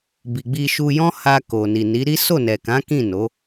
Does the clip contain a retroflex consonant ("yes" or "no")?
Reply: no